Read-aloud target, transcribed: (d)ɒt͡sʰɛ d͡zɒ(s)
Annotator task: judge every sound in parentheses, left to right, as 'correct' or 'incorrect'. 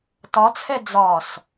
incorrect, correct

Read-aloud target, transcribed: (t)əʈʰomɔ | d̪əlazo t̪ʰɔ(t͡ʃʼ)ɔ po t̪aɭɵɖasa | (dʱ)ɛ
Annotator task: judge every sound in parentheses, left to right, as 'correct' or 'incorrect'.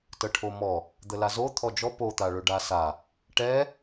correct, incorrect, incorrect

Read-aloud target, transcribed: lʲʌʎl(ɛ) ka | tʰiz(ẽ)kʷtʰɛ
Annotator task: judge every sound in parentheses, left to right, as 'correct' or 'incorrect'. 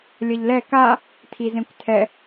correct, correct

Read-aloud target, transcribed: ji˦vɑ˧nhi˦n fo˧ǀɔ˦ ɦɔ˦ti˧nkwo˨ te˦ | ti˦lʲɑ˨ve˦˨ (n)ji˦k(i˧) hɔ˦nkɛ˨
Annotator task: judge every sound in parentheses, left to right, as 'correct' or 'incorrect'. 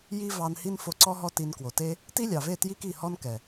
incorrect, incorrect

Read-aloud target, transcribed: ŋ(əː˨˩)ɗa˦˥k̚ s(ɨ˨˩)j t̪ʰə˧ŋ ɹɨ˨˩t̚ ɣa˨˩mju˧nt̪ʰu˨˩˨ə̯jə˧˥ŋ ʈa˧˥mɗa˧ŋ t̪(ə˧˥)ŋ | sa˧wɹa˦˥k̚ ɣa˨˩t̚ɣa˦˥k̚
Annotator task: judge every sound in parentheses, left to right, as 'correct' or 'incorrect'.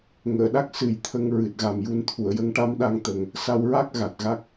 incorrect, correct, incorrect

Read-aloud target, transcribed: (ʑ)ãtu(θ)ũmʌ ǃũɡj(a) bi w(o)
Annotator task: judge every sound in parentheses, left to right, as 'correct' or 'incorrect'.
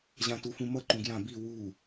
correct, incorrect, incorrect, incorrect

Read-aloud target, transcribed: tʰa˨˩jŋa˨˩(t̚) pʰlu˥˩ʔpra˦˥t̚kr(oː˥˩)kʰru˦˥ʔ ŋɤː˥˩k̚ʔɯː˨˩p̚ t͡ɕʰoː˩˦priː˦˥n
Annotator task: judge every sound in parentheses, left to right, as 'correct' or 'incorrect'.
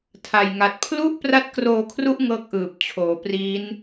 correct, incorrect

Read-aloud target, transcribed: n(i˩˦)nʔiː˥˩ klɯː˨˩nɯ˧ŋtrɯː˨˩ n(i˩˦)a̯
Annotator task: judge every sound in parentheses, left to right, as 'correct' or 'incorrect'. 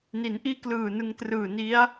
correct, incorrect

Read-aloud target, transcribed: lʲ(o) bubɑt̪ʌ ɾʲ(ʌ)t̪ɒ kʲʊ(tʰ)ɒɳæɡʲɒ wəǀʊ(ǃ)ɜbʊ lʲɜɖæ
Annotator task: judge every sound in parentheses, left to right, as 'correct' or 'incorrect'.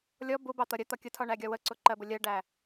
incorrect, incorrect, correct, correct

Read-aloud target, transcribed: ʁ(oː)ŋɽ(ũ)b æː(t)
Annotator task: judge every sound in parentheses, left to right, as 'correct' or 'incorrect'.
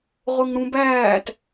incorrect, correct, correct

